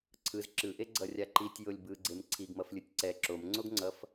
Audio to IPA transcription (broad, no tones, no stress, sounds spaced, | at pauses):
ǀʰ ɯ z ǁ ɯ ʔ e ɡ͡ǀ ʌ rʲ a ǃ i tʲ j o lʲ b ɯ ɡ͡ǀ e m ǀʰ i ɡ m ʌ f lʲ ɯ tʲ ǀ ɛ ǁ o m ŋ͡ǀ o ɡ ŋ͡ǀ ʌ f